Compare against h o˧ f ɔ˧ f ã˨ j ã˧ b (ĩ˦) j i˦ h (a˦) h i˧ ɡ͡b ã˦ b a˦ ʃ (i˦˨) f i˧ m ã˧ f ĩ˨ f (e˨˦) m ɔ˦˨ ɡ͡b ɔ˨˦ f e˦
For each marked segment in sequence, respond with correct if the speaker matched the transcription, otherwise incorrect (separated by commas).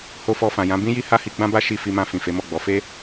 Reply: correct, correct, correct, correct